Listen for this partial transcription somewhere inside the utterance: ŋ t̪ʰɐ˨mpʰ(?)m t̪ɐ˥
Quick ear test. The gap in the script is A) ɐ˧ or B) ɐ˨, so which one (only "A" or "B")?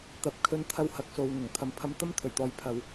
A